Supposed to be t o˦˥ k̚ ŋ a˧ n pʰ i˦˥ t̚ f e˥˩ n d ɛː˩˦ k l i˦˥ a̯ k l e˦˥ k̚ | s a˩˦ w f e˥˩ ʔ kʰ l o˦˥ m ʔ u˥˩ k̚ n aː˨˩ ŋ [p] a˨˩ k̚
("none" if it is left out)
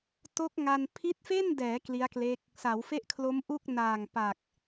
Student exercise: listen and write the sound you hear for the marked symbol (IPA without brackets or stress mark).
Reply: p